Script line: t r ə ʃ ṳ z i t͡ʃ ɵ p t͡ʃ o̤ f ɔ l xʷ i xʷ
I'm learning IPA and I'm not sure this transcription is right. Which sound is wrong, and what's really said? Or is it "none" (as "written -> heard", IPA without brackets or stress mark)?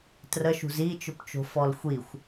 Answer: none